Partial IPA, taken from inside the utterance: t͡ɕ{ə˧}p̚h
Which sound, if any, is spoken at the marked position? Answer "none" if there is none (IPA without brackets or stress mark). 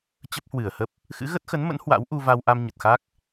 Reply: ə˦˥